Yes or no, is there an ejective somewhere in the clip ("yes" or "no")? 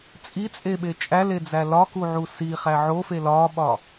yes